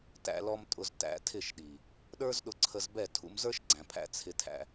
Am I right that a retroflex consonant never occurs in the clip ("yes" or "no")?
yes